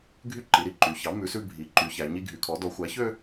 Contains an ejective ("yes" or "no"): no